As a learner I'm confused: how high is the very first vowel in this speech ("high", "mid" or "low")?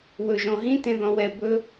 mid